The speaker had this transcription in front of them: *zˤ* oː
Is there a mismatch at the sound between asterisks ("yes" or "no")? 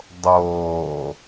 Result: yes